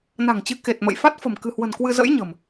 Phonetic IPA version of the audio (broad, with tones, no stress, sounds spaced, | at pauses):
n a̤˨˩ ŋ t͡ɕ ɨ˨˦ k e˨˩ t̚ m ə̰˧˨ j f a˦˥ t̚ f ə̤˨˩ m k ɨ̤˨˩ h w ə̤˨˩ n k w ɨ˧ z ə̰˧˥ j ɲ ə̤˨˩ m